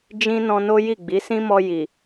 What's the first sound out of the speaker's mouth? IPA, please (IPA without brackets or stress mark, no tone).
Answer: d͡ʒ